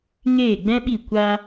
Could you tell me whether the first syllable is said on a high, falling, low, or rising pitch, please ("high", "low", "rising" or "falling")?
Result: falling